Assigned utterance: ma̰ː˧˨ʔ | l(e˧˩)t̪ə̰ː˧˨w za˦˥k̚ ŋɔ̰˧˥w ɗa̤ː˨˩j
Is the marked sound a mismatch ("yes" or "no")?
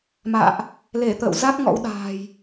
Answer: no